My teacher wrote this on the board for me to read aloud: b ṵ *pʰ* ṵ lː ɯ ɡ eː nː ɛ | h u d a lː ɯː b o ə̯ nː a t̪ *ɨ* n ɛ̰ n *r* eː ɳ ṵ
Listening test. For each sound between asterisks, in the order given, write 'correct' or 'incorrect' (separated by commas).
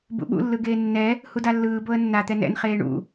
incorrect, incorrect, incorrect